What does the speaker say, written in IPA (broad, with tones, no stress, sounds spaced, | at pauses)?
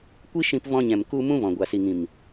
kʷ i˦ ʃ ĩ˧ p v ɔ̃˧ ɲ ɛ̃˨ m k u˧ m ũ˦ v ɔ̃˨ ɡʷ a˨ s i˨ ŋ ĩ˨ m